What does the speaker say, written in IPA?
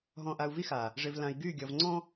ɦ ɔ̃˨ ʔ a˨ u̯ v i˦ x a˨ | ʐ ɪ˨ v l ã˨ i̯ ɡ y˦˨ ɡʲ ʌ˨ v ŋ͡ǀ ɔ̃˦

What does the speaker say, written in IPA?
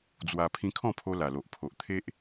d͡z w a˧ pʰ ĩ˧ kʰ ɔ̃˥˧ pʰ o˧ l a˨˩ l o˨ ʔ pʰ o˨ ʔ t̪ʰ e˦ ʔ

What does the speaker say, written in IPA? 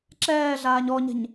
ǁ ɛː ɮ aː ɲ ɔ ɲ ɛ̤ ɲ

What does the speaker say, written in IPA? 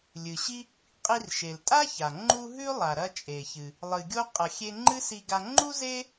lʲ ɨ˩ ɕ i˥ | qʼ i˧ r ʃ e˩ l tʼ a˥ ç a˩ ŋ͡ǃ u˧ ɦ ʉ˥ lˠ a˩ ɾ ɐ˧ t͡ʃʼ e˩ ç ɨ˩ | lˠ ɨ˩ ɡʲ o˧ qʼ ɐ˩ xʲ e˧ ŋ͡ǃ ɨ˥ s i˧ ɡ a˧ ŋ͡ǃ u˥ z e˥

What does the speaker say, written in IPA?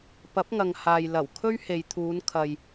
p ɐ˨˥ p̚ ŋ ɐ˨ ŋ h aː˨ j l ɐ˨˩ w kʰ ɵ˥ ɥ h e˨ j t̪ʰ uː˨˧ n kʰ ɐ˨ j

